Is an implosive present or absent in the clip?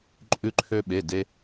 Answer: present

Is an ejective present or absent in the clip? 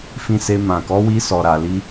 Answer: absent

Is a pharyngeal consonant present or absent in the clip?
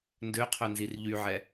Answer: present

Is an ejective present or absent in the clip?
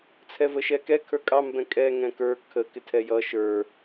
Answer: present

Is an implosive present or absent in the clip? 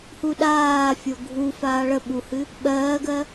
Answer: present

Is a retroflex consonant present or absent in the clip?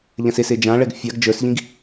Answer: present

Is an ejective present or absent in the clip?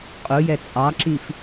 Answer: present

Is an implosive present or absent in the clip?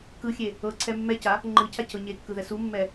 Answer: absent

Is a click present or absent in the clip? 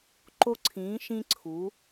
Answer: present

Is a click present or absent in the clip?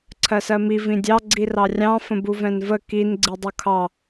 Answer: present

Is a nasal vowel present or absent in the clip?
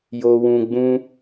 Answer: present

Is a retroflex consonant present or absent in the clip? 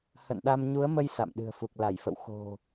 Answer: absent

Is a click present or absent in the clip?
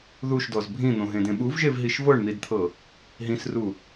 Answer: absent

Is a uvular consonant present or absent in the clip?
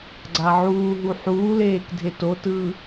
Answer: absent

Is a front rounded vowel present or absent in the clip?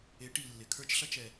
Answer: absent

